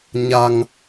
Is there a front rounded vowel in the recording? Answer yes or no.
no